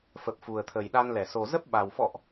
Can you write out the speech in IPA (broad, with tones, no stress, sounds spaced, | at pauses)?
f ə˨˩ p̚ f u˨˩ ə̯ t̪ʰ ə˨˩ j ɗ a˧ n l ɛ˧˩ s o˨˩ z ə˦˥ p̚ ɓ a˨˩ w f ɔ̰˧˨ ʔ